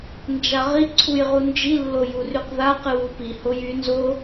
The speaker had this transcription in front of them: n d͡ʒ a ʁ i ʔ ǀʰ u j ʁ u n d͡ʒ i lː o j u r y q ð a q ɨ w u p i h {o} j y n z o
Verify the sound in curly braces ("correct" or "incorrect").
correct